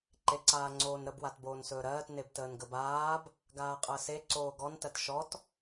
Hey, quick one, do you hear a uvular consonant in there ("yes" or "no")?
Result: yes